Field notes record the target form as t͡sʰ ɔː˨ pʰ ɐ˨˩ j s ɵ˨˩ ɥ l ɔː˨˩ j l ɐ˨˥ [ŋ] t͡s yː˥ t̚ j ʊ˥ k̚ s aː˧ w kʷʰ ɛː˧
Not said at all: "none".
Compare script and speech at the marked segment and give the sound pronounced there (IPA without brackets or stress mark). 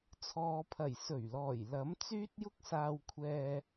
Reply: m